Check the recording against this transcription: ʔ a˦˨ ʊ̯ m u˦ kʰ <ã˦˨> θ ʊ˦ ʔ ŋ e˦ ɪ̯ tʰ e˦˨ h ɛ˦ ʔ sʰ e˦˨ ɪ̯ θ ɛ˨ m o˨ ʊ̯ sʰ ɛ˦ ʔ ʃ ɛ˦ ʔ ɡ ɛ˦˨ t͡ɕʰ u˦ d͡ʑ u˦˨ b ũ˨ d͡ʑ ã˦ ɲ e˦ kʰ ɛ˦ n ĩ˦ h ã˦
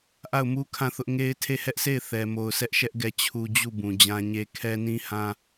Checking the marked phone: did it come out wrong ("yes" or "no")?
no